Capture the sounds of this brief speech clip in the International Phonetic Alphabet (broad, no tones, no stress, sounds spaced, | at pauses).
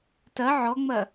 t ɐ ʕ ɔ ŋ͡m ɐ